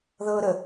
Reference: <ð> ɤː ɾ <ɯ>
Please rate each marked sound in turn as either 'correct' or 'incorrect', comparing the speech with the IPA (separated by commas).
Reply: correct, incorrect